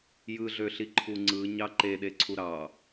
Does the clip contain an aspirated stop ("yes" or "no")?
yes